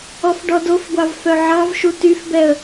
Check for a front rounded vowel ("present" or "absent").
present